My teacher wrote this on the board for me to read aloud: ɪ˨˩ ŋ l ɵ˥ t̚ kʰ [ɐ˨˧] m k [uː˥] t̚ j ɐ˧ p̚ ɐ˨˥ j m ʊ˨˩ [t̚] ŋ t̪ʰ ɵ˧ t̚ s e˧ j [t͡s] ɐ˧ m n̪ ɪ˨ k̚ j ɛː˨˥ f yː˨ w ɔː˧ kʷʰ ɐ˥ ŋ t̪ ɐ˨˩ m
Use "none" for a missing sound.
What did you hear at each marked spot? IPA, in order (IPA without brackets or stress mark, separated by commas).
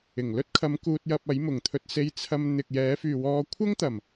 ɐ˨˧, uː˧, none, t͡sʰ